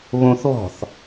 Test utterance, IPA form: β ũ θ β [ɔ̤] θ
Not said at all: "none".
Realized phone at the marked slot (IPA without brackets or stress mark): ɔ̤